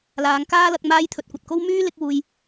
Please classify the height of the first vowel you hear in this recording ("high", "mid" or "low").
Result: low